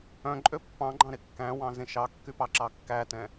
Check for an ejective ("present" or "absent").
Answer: present